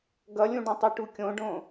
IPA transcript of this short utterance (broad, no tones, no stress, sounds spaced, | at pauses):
ɡ ʌ lʲ ũ ɖ ũ tˤ ɯ ʈ u kʲ õ ɖ õ